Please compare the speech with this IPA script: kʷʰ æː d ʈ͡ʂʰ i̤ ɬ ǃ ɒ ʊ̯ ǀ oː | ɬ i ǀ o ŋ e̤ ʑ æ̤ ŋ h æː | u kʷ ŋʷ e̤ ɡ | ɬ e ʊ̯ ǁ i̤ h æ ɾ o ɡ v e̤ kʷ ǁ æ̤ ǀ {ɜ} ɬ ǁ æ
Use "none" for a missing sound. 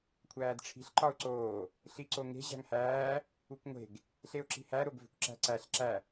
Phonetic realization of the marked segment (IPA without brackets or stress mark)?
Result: æ